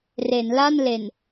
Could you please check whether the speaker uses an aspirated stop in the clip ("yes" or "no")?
no